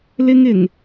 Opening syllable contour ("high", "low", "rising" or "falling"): high